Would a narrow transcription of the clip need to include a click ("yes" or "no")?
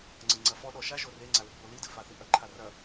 yes